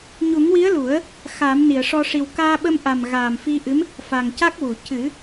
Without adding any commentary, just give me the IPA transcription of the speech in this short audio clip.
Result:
ɲ u˨˩˦ ŋ w i˧˥ ə̯ l u˨˩˦ ə̯ | x aː˨˩˦ m n i˨˩˨ ə̯ ʂ ɔ˧ ʂ i˨˩ w k aː˧ ɓ ə˧ m ʔ a˨˩ m ɣ aː˨˩ m f i˧ ʔ ɨ˧˥ m | f a˨˩ ŋ c a˦˥ k̚ w u˨˩˨ c ɨ˨˩˦

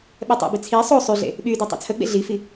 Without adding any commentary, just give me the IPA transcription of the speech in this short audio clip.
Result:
ɓ ɛ tˤ ɛ̰ b i t͡sʰ i sˤ o sˤ y ɮ ḛ | ɓ y d ɛ tˤ o̰ t͡sʰ ə ɡ͡b ḛ ɮ i f i

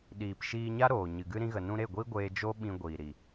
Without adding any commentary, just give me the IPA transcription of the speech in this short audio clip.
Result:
ɗ iː˨ p ʃ iː˧ ɲ a˦ ɾ oː˨ ɲ ɨ˨ ɡ ɨ˦ ɾ ĩ˧ ɣ ə˨ n ũ˧ ɾ e˦˨ ɡʷ i˦ ɡʷ eː˧ d͡ʒ o˦ ɓ ĩ˧ ɡʷ iː˨ ɾ i˨

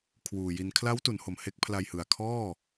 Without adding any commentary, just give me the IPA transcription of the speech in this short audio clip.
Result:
kʰ w uː˨˩ j i˧ n kʰ l a˦˥ w t u˩˦ n h o˨˩ m h e˦˥ k̚ pʰ l a˧ j h ɯ˨˩ a̯ kʰ ɔː˥˩

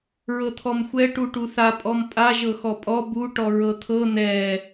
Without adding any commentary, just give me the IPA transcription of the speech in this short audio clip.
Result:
ɹ ɤ t̪ʰ ɔ m xʷ ɛ ʈ u ʈ u θ a pʼ ɔ m pʼ a ʒ ɤ x ɔ pʼ ɔ b u ʈ ɔ ɹ ɤ t̪ʰ ɤ n̪ ɛ

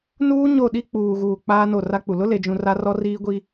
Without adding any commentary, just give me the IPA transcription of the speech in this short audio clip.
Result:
n uː˦ ɲ o˦˨ ɗ i˦ k͡p uː˨ ɣ uː˨ k͡p aː˦ n o˦˨ r a˦ k͡p u˨ l ʊ˦ l e˨ d͡ʒ ũ˨ r a˦ r ɔ˦ r iː˦ ɡʷ i˦

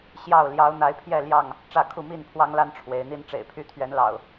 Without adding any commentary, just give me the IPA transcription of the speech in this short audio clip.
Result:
ɕ j ɑ˥˨ ʊ̯ l j ɑ˨˦ ʊ̯ n̪ a˨˦ ɪ̯ pʰ j ɛ˥˨ l j ɑ˥˨ ŋ | ʈ͡ʂ ä˥˨ kʰ u˥˨ m i˥˨ n pʰ w ɑ˦ ŋ l a˦ n ʈ͡ʂʰ w e˨˦ ɪ̯ n̪ i˦ n ʈ͡ʂ ḛ˨˩ ɪ̯ pʰ y˦ t̪ʰ ɥ ɛ˨˦ n l ɑ̰˨˩ ʊ̯

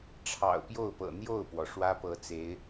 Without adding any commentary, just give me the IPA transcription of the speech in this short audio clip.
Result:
ʈ͡ʂʰ ɑ̰˨˩ ʊ̯ p j o˥˩ ʊ̯ p ɤ̰˨˩ n̪ j o˥˩ ʊ̯ p w ɔ˩ ʂ w ä˥ p ɤ˧˥ t͡s e˧˥ ɪ̯

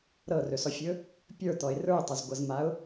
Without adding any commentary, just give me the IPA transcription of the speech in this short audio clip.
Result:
ɾ ɤ r ɵ s ɔ fʲ ɵ | pʲ ə˞ t̪ ɔ ɪ̯ r ə˞ ʊ̯ tˤ ɵ z ɡʷ ɤ z m a ʊ̯

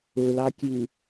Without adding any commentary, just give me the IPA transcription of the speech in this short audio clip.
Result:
ɵ l ɑ kʲ ʉ

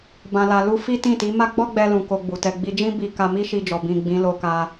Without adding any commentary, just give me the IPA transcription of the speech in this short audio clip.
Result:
b ã˧ l a˧ l u˧ f i˦ t ĩ˦˨ t i˨˦ m a˦ ɡ͡b ɔ˦ ɡ͡b ɛ˧ l ũ˨ k o˧ ɡ͡b u˨ t ɛ˧ ɡ͡b i˧ d͡ʒ ĩ˦ b i˧ k a˧ m i˦ ʃ i˧ d͡ʒ ɔ˨ b ĩ˨ ɡ͡b ĩ˨˦ l o˧ k a˧

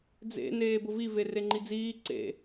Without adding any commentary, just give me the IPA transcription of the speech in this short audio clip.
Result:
d͡z ḛ n eː b ʊ v i v e r e ŋ͡ǃ i d͡z iː ǀ ḛ

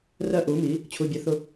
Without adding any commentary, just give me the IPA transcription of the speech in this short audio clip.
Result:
r ɜ˧ ʔ u˩˧ m i˩˧ | t͡ɕʰ u˩˧˩ bʲ ɜ˨˥ θ ʊ˧

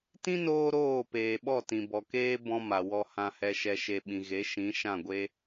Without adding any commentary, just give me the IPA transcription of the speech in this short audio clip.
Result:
t ĩ˦ n oː˧ ɾ oː˦˨ p eː˨ ɓ ɔ˦˨ t ĩ˨ b ɔ˨ k eː˦ b ɔ̃˧ m a˨ w ɔ˧ h ã˨ h ɛ˨ ʃ ɛ˨ ʃ e˨ ɓ ĩ˨ ɣ e˨˦ ʃ ĩ˨˦ ʃ ã˦˨ ɡʷ e˦

